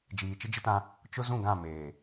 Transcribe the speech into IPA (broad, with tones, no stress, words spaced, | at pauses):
d͡ʒiː˨t͡ʃɪ˦d͡ʒɪ˦tã˦ | t͡ʃʊ˦zũ˦˨ɡã˦˨ meː˨